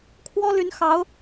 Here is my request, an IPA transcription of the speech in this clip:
kʰ w ɔ˥ l y˧˥ n x ɑ˧˥ ʊ̯

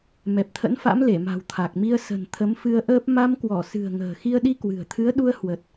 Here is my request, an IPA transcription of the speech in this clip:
m ɛ˨˩ p̚ t̪ʰ ə̰˧˥ n f a̰˧˥ m l e˧˩ m a̤˨˩ w t̪ʰ a˨˩ k̚ m i˧ ə̯ s ə̤˨˩ n t̪ʰ ə˨˦ m f ɨ˧ ə̯ ʔ əː˦˥ p̚ m a˧ m k w ɔ˧˩ s ɨ̤˨˩ ə̯ ŋ ə̤ː˨˩ x i˧ ə̯ ɗ i˧ k w ɨ̤˨˩ ə̯ t̪ʰ ɨ˨˦ ə̯ ɗ u˧ ə̯ h w ə˨˩ t̚

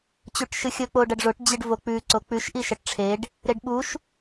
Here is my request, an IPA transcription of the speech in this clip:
t͡ɕ u ʈ ʃ ɨ xʲ ɵ k͡p o ɖ ɐ ɖ ʐ o ʈ d͡ʑ ɨ ɖ v o k͡p ʉ ǀ o k͡p ʉ ʃ ʔ i ʃ ɐ ʈ ʈ͡ʂʰ e ɖ | ɾ e ɖ ɓ u ʃ

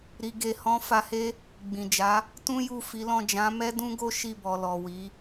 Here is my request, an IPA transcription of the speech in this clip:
ɾ i˨ ɡ e˨ h ɔ̃˨˦ f a˧ h e˦ | ɡ͡b ĩ˨ d͡ʒ a˨˦ | t ũ˦ j u˦˨ f i˨˦ l ɔ̃˦˨ d͡ʒ ã˨˦ m ɛ˦ d ũ˦ ɡ o˦ ʃ i˦˨ b ɔ˨ l ɔ˨ w i˨˦

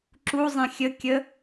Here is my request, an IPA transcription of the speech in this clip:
ǁ u zˤ ẽ xʲ ə kʲ ə

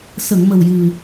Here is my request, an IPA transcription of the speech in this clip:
s ə˨˩˨ ŋ m ə˨˩ w j ɨ˨˩

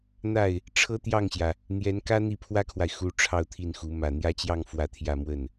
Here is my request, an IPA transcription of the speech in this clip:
n̪ a˥˩ ɪ̯ | ʈ͡ʂʰ ɤ˥ t̪ j ɑ˥˩ ŋ ɕ j ä˩ | n̪ j ɛ˧˥ n k ä˥ n̪ i˥˩ pʰ w ä˥ kʰ w a˨ ɪ̯ x u˧˥ ʈ͡ʂʰ ɑ˥˧ ʊ̯ t̪ʰ i˥˩ n x u˧˥ m ä˨˩ n̪ j ä˥˧ t͡ɕ j ɑ˥˧ ŋ f w ä˥˧ t̪ʰ j ä˥˧ m w ə˥˩ n

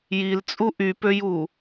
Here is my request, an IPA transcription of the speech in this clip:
j i l t͡sʼ u ʔ y p ø j u

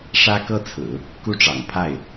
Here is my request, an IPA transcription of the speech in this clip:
ʂ ä˥ k ɤ˥ t͡sʰ ɹ̩˨˩˦ | k u˥˩ ʈ͡ʂ ɑ̰˨˩ ŋ pʰ a˥˩ ɪ̯

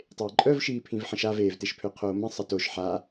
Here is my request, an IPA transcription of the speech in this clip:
tˤ eː ǃʼ œ v ʃ iː pʰ ĩ v ħ ə̃ ʃ a v eː v t e ʃ pʰ ø qʰ oː m ə̃ sˤ ə t o ʃ ħ a

